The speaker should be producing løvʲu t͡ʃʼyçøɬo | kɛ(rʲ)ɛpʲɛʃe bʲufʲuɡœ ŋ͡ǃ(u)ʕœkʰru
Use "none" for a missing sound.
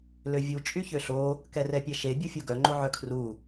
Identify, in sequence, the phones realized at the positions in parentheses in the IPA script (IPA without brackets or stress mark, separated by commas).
r, o